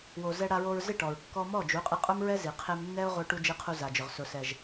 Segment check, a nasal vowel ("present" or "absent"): absent